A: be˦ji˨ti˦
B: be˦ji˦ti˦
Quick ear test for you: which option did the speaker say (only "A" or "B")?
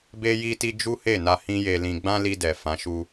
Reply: B